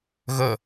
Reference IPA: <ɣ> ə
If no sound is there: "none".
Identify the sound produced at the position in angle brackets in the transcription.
ɣ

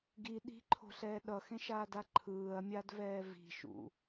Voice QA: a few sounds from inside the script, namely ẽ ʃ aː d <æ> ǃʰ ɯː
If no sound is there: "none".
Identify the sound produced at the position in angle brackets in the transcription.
a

